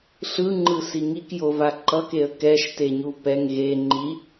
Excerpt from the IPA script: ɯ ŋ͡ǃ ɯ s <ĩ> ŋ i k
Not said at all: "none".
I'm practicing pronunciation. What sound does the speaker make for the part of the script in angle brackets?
i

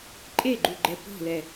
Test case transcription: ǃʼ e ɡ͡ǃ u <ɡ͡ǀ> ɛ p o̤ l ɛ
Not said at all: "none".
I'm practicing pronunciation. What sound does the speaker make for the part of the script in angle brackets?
ɡ͡ǃ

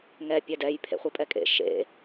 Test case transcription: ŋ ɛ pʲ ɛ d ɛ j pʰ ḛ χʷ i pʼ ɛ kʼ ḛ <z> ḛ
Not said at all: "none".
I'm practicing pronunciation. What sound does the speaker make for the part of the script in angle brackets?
ʃ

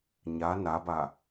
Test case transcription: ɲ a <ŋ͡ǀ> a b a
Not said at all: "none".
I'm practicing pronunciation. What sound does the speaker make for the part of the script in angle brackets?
n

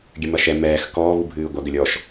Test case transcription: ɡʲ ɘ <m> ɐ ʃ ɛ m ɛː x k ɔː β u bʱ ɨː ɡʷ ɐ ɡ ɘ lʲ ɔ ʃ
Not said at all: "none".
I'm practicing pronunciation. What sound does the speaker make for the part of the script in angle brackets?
m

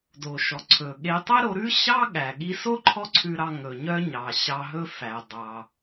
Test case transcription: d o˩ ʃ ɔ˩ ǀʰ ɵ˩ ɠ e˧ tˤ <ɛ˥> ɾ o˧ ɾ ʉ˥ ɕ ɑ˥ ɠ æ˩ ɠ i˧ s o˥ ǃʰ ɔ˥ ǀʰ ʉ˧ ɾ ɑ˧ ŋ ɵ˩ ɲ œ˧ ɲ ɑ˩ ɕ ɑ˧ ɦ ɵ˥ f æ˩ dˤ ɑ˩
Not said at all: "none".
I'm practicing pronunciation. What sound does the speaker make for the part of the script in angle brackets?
ɛ˥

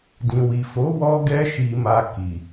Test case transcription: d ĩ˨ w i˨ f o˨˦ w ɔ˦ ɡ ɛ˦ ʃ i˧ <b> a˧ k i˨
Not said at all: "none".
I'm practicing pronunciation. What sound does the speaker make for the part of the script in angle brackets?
m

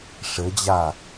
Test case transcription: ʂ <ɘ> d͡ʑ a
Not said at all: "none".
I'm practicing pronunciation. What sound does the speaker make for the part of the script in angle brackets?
ɘ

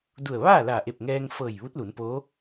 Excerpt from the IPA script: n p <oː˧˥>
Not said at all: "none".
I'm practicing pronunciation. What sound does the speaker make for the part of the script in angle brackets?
oː˧˥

